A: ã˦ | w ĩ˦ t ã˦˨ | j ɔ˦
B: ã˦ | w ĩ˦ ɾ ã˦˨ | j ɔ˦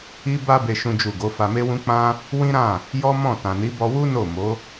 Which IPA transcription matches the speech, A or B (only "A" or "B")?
B